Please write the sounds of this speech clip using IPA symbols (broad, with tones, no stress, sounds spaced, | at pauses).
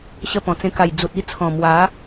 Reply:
ɕ ə˧ p ɔ̃˨˩ t͡s ẽ˧ k a˨˩ j d͡z u˨ t̚ i˥˧ t͡sʰ ɔ̃˨˩ m w a˨˦